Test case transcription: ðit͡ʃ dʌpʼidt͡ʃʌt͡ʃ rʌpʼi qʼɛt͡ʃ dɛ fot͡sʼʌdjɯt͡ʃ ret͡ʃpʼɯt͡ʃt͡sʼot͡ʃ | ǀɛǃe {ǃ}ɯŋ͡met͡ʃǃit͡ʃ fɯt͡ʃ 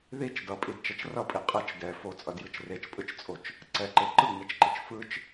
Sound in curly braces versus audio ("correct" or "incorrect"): correct